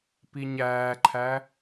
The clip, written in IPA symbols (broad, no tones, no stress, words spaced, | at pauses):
piɲæːǃʰæ